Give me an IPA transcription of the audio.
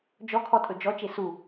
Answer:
d͡ʒ ɔ kʰ ɔ tʼ ɵ d͡ʒ ɔ t͡ʃ e s u

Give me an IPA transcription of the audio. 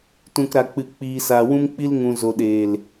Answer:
t ũ˨ k ɾ a˨ k͡p ɨ˨ k͡p iː˨ s aː˨ w ũ˧ m k͡p i˧ l ŋ ũ˨ z o˨ ɗ eː˨ l

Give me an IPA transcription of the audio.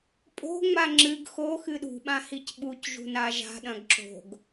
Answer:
pʼ o̤ ŋ͡m a ŋ͡ǁ ɨ ɡ x o x ɨ ɗ ṳ ɓ ã h i c ɓ u c ʒ ṳ n a ʒ a̤ ɗ ɐ̃ ɡ ǁ o̤ ɡ

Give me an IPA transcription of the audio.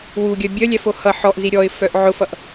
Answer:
w u ɡʲ œ bʲ œ lʲ æ f o h ʌ ħ ɔ ʔ z i ɾʲ ɔ ɪ̯ f œ ʔ ʕ ʊ f ʌ ʔ

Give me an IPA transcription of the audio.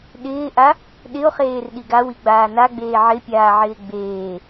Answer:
ɗ ɪː ʔ a | ɗ ɪ o̯ χ eː r ɗ i ɡ a w i ɡ͡b aː n a ɡ͡b eː ʕ ɪ pʲ aː ʕ ɪː ɡ͡b eː

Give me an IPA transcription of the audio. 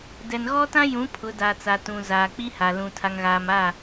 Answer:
d ɛ˨ n ɣ ɔ˦ t ã˦ j ũ˨˦ pʰ ʊ˨˦ d a˨ t͡s a˨ t ũ˨ z aː˨ k͡p i˦ h a˨ l ũ˨ tʰ a˨ ŋ ɣ aː˨ m a˦˨

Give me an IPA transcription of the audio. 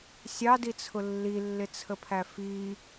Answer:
sʲ ɑ d i t͡sʰ ʊ lː i lː ɪ t͡sʰ ə pʰ æ f i

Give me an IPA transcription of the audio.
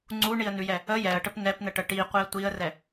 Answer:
ŋ͡ǀ u ɳ i ə̯ n ʉ j ɛ | ə j ɛ ə̯ ʈ ə p n ɛ p n ə ʈ ə ʈ i qʷ i ə̯ tʷ i ə̯ r ɛ

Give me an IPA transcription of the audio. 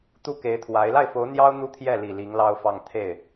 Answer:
t̪ u˥ k e˧˥ ɪ̯ t̪ʰ w a˧˥ ɪ̯ l a˥˩ ɪ̯ f o˧˥ ʊ̯ n̪ j ɑ˥ ʊ̯ n̪ u˥ t̪ʰ j ɛ˥˩ l i˨˩ l i˧˥ ŋ l ɑ˥ ʊ̯ f ɑ˥˧ ŋ t̪ʰ e˥˩ ɪ̯

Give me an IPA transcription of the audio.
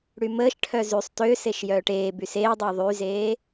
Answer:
ɽ y m əː ʃ ʈʰ œ z y sˤ t ø s e ʃ j œː ʈ eː b y s eː dˤ əː ðˤ y z eː

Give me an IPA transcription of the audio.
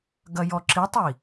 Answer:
ɡ ɐ j ɔ ǁ i tˤ i

